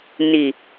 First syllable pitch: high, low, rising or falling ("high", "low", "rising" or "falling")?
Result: low